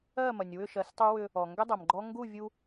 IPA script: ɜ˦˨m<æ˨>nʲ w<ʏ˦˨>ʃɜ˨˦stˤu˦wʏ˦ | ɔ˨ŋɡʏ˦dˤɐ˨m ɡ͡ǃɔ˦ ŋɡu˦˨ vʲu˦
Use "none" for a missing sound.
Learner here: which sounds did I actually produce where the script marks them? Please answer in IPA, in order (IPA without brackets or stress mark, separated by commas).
ɐ˨, ʏ˦˨